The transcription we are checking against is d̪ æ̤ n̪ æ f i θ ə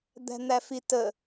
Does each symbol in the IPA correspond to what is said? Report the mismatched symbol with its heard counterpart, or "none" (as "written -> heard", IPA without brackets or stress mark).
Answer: θ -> t